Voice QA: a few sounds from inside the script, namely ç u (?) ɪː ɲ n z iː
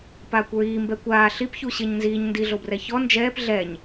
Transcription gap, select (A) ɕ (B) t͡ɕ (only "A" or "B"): A